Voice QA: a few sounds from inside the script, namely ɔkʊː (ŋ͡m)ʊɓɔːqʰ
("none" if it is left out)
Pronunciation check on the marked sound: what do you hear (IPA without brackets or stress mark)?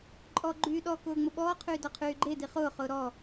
ŋ͡m